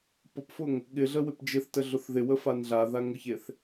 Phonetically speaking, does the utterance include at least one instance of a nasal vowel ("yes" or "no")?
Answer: no